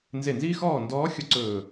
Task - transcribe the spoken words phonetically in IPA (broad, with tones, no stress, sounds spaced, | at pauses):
n z e˦˨ n z iː˥ x ɔː˦˨ n d ɔː˧˥ xʲ ʊ˥ ǀ ɵː˦˨